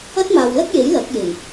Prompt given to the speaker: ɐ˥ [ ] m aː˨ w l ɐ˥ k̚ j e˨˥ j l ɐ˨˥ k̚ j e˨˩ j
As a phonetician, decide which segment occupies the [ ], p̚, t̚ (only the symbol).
t̚